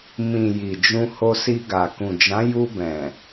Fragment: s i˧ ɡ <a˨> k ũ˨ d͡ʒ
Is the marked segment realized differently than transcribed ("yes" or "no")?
no